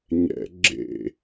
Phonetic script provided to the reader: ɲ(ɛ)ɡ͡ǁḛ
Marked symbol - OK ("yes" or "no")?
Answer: no